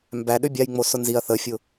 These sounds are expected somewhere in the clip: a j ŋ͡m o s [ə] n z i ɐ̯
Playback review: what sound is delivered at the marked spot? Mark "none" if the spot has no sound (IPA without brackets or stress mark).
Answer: ʊ